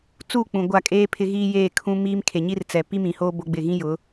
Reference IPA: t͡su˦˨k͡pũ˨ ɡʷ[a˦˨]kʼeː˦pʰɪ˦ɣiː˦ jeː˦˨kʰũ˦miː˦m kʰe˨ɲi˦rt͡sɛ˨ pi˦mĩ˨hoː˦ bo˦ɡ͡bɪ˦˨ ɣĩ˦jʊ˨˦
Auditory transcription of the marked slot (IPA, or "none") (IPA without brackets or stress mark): a˦˨